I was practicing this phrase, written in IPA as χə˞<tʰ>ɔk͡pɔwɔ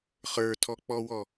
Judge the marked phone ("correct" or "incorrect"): correct